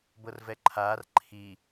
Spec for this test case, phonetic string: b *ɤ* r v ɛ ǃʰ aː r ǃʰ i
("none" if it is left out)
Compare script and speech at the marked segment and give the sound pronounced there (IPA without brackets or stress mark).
ɤ